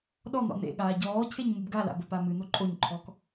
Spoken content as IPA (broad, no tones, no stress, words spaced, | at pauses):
ɗɔn̪ɔ̰ nḛɠaː ɟɔːcʰeɲ mɨbɡala̰ bəpamɨn̪o ǃʼoɲǃʰɔk